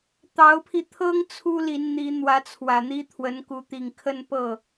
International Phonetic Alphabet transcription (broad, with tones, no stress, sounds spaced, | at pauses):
t̪ ɑ˧˥ ʊ̯ pʰ i˧ t̪ʰ ɤ˥ ŋ t͡sʰ u˥ l i˧˥ n n̪ i˧˥ n̪ w ä˧˥ t͡sʰ w ä˨˩ n̪ i˥ t̪ʰ w ə˧˥ n k u˧˥ t̪ i˨˩ ŋ kʰ ə˥˧ n p ɤ˥˩